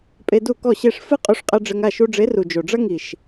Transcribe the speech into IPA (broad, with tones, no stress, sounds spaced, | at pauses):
pʼ e˧ d u˦˨ k ɔ˦˨ ɕ e˦˨ ʂ f ɨ˦ qʼ u˧ ʂ qʼ ɐ˧ ɖ͡ʐ ɘ˧ ŋ a˦˨ ʃ u˧ ɖ͡ʐ e˨˦ r u˨ d͡ʒ o˨ ɖ͡ʐ ɐ˦ ŋ i˨ ʃ